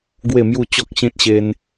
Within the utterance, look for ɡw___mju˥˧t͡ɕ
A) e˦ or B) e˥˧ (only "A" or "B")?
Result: B